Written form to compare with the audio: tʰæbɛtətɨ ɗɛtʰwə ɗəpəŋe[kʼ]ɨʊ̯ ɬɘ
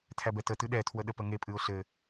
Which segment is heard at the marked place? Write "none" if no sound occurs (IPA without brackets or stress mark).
pʼ